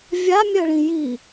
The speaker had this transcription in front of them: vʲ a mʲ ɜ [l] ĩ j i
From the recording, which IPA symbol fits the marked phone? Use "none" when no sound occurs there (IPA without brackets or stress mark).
ɭ